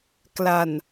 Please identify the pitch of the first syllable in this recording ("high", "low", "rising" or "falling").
low